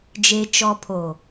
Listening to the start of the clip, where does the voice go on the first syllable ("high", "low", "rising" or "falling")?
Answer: low